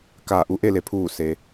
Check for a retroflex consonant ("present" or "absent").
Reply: absent